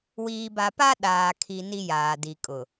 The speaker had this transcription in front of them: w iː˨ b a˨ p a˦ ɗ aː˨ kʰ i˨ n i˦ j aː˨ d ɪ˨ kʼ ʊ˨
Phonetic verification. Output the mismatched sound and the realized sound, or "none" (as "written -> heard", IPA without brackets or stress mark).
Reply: ɪ˨ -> i˨